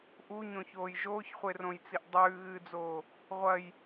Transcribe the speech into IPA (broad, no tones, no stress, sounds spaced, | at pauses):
ʔ u ɲ õ ç oː j ʒ oː ç χʷ e r õ j t͡s i ʔ dˤ ʉː ɣ ɨː d͡z oː | ʁʷ ɐ j